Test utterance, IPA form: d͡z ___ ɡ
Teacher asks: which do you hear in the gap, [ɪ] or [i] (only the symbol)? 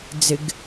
ɪ